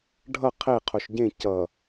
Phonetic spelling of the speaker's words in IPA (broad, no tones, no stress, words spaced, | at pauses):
ɖʱʌ qʰe qʰoʃɟẽ cʌ